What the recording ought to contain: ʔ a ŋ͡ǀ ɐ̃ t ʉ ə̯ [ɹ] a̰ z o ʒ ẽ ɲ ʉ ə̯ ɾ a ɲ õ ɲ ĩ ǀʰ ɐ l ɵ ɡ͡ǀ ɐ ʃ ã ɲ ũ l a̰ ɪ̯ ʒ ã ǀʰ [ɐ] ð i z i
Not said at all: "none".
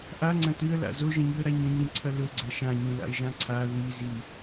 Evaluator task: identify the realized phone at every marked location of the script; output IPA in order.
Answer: l, a

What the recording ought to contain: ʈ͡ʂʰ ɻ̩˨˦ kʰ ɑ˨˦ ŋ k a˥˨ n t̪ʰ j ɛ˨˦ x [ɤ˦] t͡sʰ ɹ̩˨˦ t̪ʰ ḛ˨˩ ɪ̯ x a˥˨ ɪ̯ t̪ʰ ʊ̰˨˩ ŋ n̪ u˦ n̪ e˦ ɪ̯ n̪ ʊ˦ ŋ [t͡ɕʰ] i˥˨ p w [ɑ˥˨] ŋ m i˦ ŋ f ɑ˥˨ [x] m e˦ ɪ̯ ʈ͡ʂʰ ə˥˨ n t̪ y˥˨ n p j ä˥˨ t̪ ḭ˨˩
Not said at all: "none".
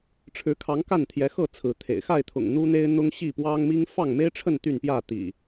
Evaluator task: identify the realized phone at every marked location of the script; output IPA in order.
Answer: ɤ˥˨, ɕ, ɑ˦, ŋ

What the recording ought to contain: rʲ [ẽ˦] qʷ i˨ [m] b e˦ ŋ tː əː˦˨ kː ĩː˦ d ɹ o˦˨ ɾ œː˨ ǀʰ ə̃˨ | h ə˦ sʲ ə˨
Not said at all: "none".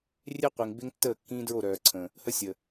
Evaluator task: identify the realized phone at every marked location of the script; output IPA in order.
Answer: e˦, ŋ

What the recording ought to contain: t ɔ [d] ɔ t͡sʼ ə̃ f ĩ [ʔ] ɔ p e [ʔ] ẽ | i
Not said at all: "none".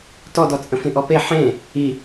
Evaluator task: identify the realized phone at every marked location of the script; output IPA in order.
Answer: d, ʔ, ħ

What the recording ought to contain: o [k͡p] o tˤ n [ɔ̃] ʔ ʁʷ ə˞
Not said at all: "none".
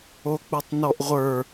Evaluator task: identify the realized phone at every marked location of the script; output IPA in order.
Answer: k͡p, ɔ

